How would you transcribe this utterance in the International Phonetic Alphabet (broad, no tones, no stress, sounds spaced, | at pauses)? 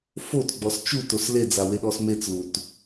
f o t ɡ͡b ɔ s t͡ʃ u t o s l e d͡z a w e ɗ ɔ s m e t͡s l u t